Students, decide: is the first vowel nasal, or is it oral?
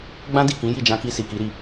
nasal